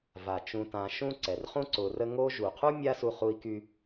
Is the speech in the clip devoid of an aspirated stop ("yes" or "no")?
no